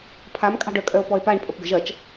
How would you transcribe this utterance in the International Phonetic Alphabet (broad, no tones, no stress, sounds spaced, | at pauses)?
pʰ a m kʼ ɑ̤ ɖ œ kʼ œ o̯ p ɔ e̯ p a ɳ pʼ ə p ɡ ə̤ ʒ ɐ t͡ʃ